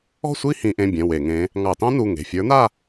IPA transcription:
ɔ̤˥˧sʷi˥˧ hĩ˧˩˧ʔẽ˩˧˩bʲɛ̃˩˧˩ we˧˩˧ŋẽ˧˥ | ŋɑ˧˩˧tɑ̃˥nu˩˧˩ ŋe̤˩˧˩fʲə˞˧˥na˥˧

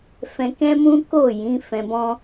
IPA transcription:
fɛ̃˧ kɛ̃˦mũ˦ko˦˨ jĩ˨˦fɛ̃˧bɔ̃˦

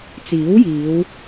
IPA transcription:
t͡siː˨˥wjiː˨˧w

